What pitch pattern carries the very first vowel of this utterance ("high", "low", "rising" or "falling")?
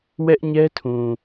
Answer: high